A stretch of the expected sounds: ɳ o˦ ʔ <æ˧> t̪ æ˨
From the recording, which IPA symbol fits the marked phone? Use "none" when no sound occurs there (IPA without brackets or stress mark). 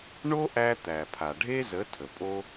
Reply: æ˧